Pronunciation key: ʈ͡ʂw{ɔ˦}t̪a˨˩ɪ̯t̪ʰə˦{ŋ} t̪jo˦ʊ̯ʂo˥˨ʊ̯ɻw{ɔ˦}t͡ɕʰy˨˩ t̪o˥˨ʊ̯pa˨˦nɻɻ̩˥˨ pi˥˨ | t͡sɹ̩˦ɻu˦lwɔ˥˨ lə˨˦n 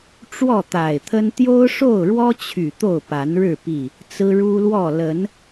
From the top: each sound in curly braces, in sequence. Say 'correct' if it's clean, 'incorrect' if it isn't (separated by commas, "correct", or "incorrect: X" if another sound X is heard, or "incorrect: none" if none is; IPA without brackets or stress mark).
incorrect: ɔ˥˨, incorrect: n, correct